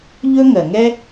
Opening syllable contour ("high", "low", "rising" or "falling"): high